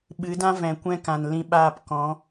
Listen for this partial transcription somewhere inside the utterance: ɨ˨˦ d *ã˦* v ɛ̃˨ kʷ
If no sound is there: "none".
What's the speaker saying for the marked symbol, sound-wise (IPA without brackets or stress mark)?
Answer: ã˦